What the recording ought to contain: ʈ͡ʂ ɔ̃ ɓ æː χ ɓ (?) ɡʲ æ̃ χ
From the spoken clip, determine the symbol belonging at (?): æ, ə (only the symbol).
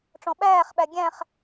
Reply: æ